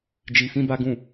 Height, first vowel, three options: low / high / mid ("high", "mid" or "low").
high